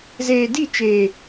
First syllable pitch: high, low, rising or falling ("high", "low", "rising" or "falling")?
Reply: low